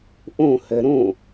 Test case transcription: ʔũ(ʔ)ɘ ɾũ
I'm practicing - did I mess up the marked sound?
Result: yes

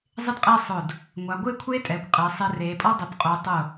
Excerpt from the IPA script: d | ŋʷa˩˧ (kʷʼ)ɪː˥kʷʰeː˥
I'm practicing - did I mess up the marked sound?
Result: yes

